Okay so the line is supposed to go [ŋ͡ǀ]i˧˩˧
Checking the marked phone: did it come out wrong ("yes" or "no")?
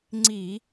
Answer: no